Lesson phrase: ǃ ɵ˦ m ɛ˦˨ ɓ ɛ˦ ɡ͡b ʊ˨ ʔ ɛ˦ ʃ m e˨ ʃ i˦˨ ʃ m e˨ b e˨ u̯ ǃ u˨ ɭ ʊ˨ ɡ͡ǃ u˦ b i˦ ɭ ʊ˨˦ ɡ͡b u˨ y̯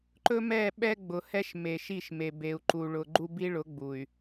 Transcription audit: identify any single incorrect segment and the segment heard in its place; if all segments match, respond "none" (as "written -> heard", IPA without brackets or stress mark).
ʔ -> h